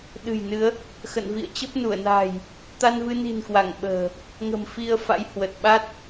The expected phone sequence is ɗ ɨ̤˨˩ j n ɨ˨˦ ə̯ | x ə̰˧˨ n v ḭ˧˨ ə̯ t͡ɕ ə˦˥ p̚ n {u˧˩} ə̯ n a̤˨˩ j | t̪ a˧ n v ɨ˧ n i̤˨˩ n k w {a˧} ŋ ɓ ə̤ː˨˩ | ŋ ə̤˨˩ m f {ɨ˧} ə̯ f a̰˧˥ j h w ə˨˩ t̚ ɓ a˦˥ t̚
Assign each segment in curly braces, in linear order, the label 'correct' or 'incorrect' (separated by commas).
correct, incorrect, incorrect